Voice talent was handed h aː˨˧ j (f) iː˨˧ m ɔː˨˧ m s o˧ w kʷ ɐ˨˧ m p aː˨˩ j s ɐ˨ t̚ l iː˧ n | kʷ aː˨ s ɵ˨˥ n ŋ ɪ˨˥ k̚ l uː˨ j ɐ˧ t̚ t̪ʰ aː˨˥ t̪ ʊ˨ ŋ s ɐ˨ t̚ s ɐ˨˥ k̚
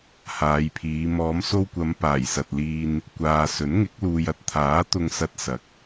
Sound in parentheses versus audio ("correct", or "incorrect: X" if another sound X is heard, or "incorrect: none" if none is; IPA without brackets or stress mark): incorrect: pʰ